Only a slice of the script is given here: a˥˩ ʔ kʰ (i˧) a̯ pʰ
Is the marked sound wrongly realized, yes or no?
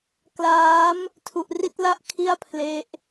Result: yes